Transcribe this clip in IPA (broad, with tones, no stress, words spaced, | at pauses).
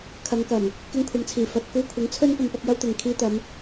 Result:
kʰɐ˨˧ŋkɐ˨˩m | kɪ˧ŋkʷʰɐ˨mt͡sʰiː˨˩ fɐ˧t̚ kuː˧kʷʰɪ˨˥ŋt͡sʰɵ˥n pɐ˧mpɐ˥k̚jɐ˥wt̪ɪ˨ŋ kʰiː˧t̪ɐ˨˧m